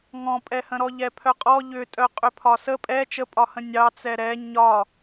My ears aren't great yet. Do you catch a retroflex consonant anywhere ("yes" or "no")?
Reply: no